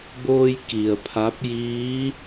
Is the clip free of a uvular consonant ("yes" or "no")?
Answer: yes